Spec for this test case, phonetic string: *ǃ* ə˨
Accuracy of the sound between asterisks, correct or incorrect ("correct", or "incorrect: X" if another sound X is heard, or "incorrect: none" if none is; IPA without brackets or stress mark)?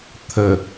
incorrect: t̪ʰ